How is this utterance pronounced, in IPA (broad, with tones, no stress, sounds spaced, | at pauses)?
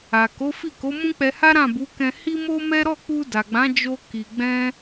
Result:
a˨ k o˨˦ f i˦˨ k o˨˦ m ũ˦ k͡p ɛ˧ h a˦ ɾ ã˦˨ b u˨˦ k ɛ̃˧ h i˦ m o˦ m ɛ˦ ɾ ɔ˦˨ k͡p u˧ d a˨ ɡ͡b ã˨˦ d͡ʒ o˧ k i˨ ɡ͡b ɛ̃˧